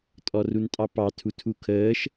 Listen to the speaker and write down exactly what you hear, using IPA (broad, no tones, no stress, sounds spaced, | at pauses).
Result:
tʼ ɔ r u n tʼ ɑ p ɑ tʰ u tʰ u kʰ əː ʃ